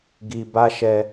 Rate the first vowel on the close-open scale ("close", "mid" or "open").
close